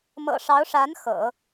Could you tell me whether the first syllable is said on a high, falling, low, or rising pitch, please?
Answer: low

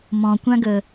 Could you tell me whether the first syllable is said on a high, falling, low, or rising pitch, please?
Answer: low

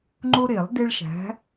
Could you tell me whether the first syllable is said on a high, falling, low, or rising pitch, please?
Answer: high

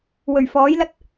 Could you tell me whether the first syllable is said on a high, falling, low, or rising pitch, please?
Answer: low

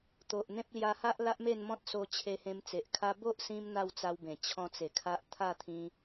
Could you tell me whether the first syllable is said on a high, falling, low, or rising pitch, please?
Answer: low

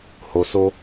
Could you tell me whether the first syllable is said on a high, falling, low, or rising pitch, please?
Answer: low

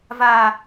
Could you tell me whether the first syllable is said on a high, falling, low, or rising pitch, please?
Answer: high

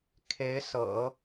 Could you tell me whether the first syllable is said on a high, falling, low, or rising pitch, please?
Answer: rising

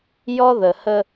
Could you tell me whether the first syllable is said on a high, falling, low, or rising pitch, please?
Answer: high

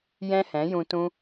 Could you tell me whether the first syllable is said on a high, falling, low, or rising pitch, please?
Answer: high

